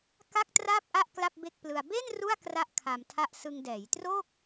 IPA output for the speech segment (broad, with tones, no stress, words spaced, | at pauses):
ka˥˩k̚traː˥˩p̚ʔa˥˩ʔ kla˥˩p̚be˥˩k̚plɯ˧a̯ be˥˩n ru˥˩a̯kra˦˥ʔ kʰa˧mtʰa˥˩ʔ sɯ˧ŋ dɛː˩˦jtroː˥˩k̚